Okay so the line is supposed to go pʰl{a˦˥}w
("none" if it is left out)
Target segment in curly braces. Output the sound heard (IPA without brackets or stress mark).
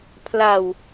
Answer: a˨˩